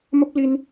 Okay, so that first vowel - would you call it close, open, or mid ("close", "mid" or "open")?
mid